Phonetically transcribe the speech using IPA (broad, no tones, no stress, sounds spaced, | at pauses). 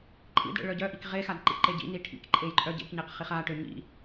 ǃʼ ḭ d ɽ ḛ ɭ œ ɟ œ ʔ i k ʁ e x a d ǃ ḭ ǃ e ɟ ḭ n i ʈʰ ḭ k ǃʼ e j ǃʼ œ ɟ ḛ k ɲ e q χ i χ a ʈ ø ɲ ḭ